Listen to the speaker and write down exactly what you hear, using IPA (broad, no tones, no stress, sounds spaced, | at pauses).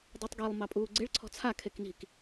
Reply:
dˤ i tˤ ɡ e lˠ m ɑ pʼ uː ɡ͡ǀ e ɭ ǀʰ ɔ̤ t͡sʰ a kʰ e k n i̤ k